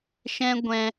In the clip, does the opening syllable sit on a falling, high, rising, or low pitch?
high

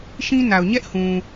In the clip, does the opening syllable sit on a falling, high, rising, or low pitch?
high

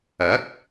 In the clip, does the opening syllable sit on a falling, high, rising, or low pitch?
rising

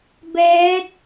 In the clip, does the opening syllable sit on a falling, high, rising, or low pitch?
rising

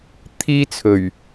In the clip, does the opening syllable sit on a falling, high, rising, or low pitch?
high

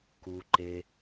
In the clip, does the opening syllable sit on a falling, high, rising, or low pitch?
low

